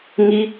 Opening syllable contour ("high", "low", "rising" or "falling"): high